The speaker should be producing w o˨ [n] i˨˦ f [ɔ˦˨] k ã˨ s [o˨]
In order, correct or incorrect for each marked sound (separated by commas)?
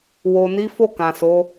correct, incorrect, incorrect